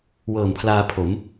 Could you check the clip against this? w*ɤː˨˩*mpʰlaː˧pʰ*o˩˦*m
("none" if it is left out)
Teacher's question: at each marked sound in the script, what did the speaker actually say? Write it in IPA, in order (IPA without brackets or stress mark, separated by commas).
ɤː˨˩, o˩˦